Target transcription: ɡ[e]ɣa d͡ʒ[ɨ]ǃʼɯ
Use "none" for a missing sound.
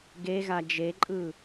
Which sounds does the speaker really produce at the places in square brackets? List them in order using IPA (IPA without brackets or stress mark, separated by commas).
e, e